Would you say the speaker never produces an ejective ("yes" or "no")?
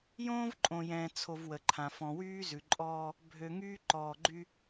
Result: no